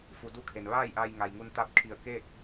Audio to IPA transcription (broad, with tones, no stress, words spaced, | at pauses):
fu˩˧du˥˨kʰe˩n ʋaː˥˨jʔa˧j ŋa˩jŋu˧nt̪a˧˥p̚kʰi˧˩ə̯ ke˥˨k̚